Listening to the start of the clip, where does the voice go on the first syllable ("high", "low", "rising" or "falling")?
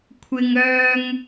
high